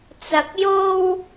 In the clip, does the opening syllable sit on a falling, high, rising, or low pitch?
low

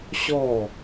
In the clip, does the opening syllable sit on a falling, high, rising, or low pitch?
falling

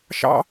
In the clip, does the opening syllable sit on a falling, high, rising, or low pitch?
high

